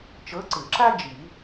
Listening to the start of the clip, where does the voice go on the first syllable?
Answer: rising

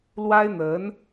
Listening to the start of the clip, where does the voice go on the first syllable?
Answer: high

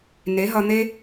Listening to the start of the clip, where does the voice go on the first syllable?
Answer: rising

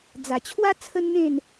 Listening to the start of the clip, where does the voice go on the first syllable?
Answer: low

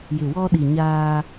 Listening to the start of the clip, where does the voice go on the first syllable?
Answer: low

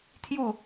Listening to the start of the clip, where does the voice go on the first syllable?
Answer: falling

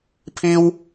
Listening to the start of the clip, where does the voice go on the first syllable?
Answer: high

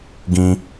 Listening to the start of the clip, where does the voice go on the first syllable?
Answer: high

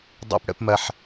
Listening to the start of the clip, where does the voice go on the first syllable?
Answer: high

